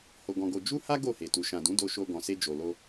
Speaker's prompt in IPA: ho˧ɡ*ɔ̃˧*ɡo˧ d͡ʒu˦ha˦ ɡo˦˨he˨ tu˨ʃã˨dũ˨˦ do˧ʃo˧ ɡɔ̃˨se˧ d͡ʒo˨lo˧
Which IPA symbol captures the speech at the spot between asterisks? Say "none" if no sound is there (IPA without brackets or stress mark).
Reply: ɔ̃˧